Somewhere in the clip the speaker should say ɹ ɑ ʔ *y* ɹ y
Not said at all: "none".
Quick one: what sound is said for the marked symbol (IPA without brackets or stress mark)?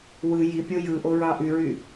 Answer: y